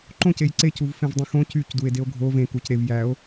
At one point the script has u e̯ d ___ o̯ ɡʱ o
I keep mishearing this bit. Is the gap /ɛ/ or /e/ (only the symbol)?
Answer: e